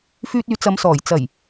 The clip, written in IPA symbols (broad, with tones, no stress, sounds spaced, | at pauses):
f yː˧ t̚ yː˨˧ t͡s ɐ˨˧ m s ɔː˨˩ j t͡s ɐ˨˩ j